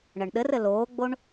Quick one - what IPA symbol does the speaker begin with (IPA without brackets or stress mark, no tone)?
ɳ